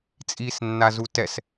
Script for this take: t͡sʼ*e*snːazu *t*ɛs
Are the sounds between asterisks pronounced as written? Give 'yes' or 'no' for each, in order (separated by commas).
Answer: no, yes